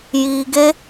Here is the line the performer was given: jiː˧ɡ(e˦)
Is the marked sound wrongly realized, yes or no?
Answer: no